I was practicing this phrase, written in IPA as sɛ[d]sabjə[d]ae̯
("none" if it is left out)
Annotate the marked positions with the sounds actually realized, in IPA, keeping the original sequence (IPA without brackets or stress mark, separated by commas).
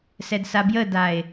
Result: d, d